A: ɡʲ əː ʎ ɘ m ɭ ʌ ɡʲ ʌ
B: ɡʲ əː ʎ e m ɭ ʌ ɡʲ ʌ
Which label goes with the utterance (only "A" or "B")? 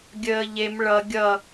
B